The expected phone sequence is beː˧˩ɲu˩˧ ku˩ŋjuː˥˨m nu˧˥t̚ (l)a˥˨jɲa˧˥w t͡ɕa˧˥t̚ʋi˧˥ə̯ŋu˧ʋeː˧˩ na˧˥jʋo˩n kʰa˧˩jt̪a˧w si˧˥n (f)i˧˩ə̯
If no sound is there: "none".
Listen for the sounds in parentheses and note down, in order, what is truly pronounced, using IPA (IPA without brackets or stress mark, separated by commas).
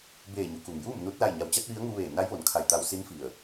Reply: l, f